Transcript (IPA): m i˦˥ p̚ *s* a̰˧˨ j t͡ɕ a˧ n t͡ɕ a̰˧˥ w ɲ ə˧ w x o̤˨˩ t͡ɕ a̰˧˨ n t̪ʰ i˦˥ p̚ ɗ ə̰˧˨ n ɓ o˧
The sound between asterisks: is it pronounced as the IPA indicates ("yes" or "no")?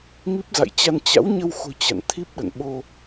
no